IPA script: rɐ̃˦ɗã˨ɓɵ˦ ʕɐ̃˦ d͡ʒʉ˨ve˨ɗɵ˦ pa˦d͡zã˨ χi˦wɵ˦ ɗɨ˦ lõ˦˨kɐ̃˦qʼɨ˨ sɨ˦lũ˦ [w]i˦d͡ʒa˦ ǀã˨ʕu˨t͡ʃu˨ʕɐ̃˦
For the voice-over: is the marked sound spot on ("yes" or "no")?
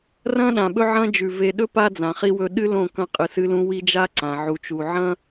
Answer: yes